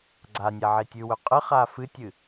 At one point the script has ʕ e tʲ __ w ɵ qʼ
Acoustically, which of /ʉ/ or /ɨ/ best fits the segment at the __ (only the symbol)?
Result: ʉ